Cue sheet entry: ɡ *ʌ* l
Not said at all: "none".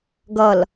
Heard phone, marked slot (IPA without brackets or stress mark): ʌ